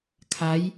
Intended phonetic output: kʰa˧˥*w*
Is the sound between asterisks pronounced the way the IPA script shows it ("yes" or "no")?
no